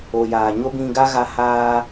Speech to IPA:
o˨ j aː˨ ɲ o˦ b ĩ˧ ɡ a˦ ɣ a˧ h aː˧

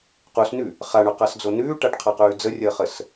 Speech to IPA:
q u s n ʉ | χ a ɳ o q a s d͡z o n ʉː ʈ a ʈ qʰ a q ʉː d͡z ə rʲ əː χ ə s

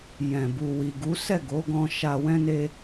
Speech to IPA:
j ɛ̃˨ b u˨ w i˨ ɡ u˨˦ s ɛ˦˨ ɡ o˨˦ ɡ ɔ̃˧ ʃ a˧ w ɛ̃˦ n e˦

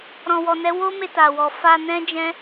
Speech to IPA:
ɾ ɔ̃˨ w ɔ˨ n ɛ˨˦ w o˦ m e˧ t a˨ w ɔ˨ f a˧ n ɛ̃˦ d͡ʒ ɛ̃˦

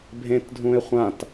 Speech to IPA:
bʱ ẽ t dʱ ũ e̯ χʷ ã t

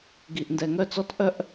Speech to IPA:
ɡ i˩ ʔ n d ɛ˩ ŋ œ˧ t͡s ɔ˧ t ʔ œ˧ ʔ

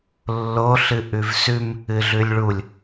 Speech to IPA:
lː o ɬ ɨ ʔ ʉ v s ʉ m | ɨ ɮ ʉ lʲ ɭ u lʲ

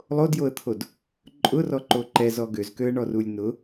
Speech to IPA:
lˠ o d j o ə̯ t̪ʰ o d | ǃʼ ʊ r ɔ ǃ o ǃ ɛ z ɔ ɡ ø z k ø ə̯ ɳ ɔ r u lʲ n ʊ

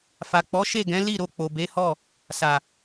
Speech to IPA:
f a˨ k͡p ɔ˨˦ ʃ e˦˨ ɡ ɛ̃˨˦ l i˦˨ ɾ o˧ k͡p o˨ b e˨˦ h ɔ˦˨ | s a˨

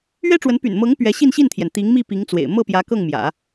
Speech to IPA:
ɥ ɛ˥ ʈ͡ʂ w ə˧˥ n p y̰˨˩ n m ɤ˧˥ ŋ p ɥ ɛ˧˥ ɕ i˥˧ n ɕ i˥˩ n t̪ʰ j ɛ˩ n t̪ i˧˥ ŋ m i˥˩ p i˧˥ ŋ t͡s w ḛ˨˩ ɪ̯ m ɤ˥˩ p j ä˧˥ k ɤ˥˩ ŋ m j ä̰˨˩˦

